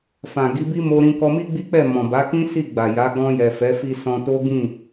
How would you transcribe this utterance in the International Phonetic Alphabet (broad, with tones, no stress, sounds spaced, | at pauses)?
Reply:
f ã˨ ɡ i˨˦ b i˦ m o˧ ɾ ĩ˧ k ɔ˧ m i˦ ɡ͡b i˦ k͡p ɛ˦˨ m ɔ̃˨ b a˨˦ k ĩ˦ s i˦˨ ɡ͡b a˨ j a˨˦ ɡ ɔ̃˧ j ɛ˨ f ɛ˨˦ f i˧ s ɔ̃˧ t o˦ ɡ ĩ˦˨